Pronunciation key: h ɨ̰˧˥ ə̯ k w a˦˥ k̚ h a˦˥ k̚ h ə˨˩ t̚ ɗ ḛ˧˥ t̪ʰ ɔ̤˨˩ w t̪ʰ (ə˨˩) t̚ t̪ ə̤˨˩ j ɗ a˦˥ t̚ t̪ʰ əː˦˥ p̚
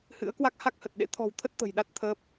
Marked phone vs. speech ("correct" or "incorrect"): incorrect